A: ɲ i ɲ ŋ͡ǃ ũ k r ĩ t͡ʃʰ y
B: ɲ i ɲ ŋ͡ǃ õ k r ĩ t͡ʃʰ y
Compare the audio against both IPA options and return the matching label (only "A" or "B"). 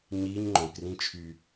B